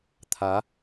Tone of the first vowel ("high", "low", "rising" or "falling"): rising